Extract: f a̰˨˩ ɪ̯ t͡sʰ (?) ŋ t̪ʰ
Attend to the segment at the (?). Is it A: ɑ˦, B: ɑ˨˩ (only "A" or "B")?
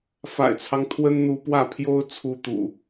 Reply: A